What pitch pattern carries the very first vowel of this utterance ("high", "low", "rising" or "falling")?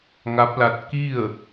rising